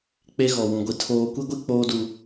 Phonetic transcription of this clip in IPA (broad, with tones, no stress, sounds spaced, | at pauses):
k͡p e˦ ɣ ɔ˨ w ũ˨ ɡʷ i˨ tʰ oː˦ kʷ i˦ ɡʷ i˦ k͡p oː˦ d u˨